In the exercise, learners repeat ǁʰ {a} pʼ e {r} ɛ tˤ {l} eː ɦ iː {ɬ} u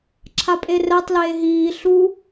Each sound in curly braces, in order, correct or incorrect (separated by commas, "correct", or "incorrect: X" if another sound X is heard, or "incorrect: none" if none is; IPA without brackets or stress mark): correct, correct, correct, correct